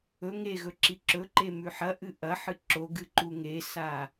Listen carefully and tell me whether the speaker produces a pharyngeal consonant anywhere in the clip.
yes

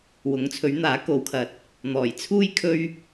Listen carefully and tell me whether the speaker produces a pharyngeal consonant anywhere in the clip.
no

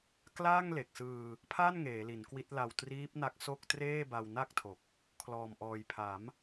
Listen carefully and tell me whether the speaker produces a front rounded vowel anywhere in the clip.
no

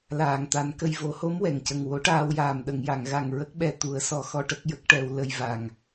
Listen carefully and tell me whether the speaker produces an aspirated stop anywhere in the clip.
no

